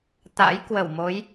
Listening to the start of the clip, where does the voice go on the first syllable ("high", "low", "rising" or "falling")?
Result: rising